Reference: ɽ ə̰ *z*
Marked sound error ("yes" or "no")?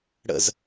no